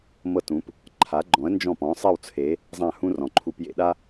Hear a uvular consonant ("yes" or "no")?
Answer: no